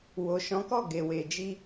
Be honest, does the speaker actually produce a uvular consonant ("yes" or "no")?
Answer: no